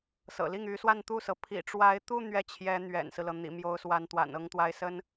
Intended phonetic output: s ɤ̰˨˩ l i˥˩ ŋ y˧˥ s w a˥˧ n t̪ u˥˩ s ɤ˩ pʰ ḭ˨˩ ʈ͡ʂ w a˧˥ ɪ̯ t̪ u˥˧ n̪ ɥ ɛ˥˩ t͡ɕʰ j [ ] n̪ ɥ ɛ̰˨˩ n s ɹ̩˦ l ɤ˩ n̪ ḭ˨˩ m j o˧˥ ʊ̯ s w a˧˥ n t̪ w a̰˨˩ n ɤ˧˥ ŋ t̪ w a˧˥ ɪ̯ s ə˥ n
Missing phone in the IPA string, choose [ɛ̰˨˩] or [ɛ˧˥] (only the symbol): ɛ˧˥